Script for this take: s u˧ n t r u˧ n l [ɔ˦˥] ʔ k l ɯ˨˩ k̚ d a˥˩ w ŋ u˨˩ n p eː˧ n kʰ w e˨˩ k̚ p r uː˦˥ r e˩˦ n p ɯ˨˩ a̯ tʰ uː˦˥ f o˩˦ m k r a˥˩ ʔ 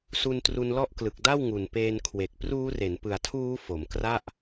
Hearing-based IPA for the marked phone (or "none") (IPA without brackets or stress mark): ɔ˦˥